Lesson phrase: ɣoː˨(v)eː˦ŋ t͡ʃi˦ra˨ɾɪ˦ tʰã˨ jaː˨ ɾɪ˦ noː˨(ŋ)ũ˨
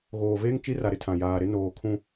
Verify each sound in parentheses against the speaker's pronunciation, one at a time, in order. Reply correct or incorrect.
correct, incorrect: kʰ

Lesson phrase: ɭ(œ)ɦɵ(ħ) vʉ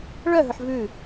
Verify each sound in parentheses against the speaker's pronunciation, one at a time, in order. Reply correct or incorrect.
correct, correct

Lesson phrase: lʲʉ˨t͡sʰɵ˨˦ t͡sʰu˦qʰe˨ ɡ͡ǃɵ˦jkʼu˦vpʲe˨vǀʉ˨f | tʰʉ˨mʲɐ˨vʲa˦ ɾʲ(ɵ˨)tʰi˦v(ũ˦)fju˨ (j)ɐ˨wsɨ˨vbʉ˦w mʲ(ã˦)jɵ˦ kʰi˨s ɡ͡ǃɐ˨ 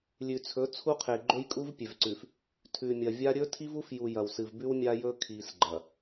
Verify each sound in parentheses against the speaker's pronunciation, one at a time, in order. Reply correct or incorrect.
incorrect: ɵ˦, incorrect: u˦, correct, incorrect: a˦

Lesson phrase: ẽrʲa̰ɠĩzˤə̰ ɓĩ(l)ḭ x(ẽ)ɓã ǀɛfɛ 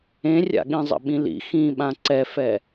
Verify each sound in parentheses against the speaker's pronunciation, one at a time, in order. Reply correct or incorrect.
correct, incorrect: ĩ

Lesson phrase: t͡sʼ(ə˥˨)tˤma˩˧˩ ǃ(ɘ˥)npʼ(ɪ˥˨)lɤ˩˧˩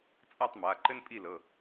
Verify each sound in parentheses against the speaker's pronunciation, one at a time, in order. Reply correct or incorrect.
incorrect: a˥˨, correct, incorrect: i˥˨

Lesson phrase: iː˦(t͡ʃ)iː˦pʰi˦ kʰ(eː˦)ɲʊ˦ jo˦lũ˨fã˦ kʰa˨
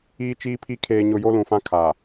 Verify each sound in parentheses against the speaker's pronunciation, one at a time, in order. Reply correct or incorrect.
correct, correct

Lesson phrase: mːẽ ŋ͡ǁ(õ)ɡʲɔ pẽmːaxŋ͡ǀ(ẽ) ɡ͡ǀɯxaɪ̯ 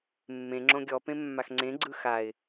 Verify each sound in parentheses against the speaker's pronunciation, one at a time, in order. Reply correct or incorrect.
correct, correct

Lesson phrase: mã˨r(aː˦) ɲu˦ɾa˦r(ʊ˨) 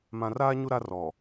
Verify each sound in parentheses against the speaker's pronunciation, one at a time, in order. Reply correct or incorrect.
correct, incorrect: ɔ˨

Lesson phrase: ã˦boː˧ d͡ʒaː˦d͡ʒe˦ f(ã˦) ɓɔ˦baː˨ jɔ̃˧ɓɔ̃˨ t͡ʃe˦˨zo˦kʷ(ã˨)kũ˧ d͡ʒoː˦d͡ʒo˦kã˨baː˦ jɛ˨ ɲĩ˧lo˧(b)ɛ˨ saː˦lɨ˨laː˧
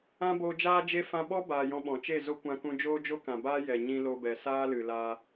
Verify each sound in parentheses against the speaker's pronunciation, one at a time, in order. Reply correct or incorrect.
correct, incorrect: ã˧, correct

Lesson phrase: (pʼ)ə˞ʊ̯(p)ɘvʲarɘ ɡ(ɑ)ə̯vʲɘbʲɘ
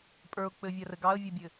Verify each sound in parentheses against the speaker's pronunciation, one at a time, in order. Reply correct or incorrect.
correct, incorrect: k͡p, correct

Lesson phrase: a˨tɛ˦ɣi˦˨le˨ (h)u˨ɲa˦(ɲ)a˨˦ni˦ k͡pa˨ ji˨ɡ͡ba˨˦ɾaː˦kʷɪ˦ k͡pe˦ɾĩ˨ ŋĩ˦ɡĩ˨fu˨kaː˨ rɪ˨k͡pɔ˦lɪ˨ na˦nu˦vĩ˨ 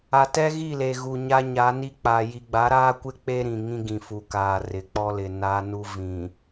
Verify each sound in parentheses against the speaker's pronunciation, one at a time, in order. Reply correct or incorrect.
incorrect: ɣ, correct

